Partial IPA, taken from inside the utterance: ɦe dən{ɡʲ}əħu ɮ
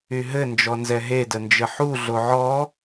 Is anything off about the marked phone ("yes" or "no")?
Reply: yes